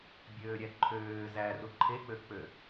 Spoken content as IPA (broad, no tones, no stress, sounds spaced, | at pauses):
bʲ øː ɾʲ æ ǃʰ øː z æ r u ǃʰ e k͡p ø k͡p ø